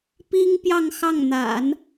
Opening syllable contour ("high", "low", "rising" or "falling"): high